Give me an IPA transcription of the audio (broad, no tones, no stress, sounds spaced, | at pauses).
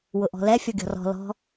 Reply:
w ʊ ʔ ɔ̤ l ɛ fʲ ɔ ɡʲ ɔ̤ r ɔ̤ l ɔ̤